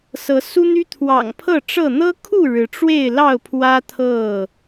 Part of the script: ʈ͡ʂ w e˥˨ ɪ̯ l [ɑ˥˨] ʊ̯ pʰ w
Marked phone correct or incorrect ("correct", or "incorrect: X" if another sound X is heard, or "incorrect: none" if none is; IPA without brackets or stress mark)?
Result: correct